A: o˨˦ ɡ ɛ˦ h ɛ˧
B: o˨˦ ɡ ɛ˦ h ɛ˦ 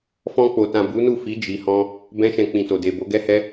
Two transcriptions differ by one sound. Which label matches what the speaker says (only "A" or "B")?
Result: B